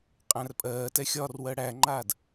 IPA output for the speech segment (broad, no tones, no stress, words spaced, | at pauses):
qʼæ̃rpʼɜːtɛ xʲɒrwɜ ɽæŋ͡ǃaːd